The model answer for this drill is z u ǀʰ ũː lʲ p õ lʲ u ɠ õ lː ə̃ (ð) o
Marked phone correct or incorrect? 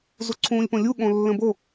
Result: incorrect: b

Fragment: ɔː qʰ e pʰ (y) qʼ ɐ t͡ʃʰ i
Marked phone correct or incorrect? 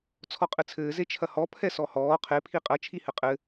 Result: incorrect: i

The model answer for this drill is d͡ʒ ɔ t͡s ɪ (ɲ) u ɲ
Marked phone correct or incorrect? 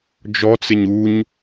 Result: correct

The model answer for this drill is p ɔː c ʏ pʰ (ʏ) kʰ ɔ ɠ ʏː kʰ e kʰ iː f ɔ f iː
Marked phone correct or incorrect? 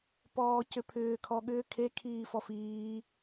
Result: incorrect: ʏː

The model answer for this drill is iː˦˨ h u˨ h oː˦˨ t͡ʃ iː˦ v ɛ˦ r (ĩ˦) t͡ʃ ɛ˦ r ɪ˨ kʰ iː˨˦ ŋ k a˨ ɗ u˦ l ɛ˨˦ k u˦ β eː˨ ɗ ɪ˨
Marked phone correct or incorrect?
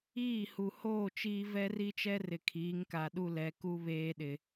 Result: incorrect: i˦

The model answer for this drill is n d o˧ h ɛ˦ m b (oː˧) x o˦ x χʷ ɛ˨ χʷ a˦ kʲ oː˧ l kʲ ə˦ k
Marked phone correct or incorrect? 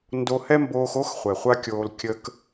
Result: correct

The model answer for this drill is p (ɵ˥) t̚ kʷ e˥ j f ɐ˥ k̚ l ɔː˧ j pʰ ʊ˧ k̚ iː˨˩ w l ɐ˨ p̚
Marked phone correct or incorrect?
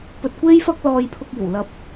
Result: incorrect: ɵ˧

